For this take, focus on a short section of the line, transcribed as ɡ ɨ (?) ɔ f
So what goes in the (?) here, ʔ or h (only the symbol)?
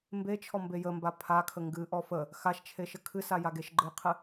ʔ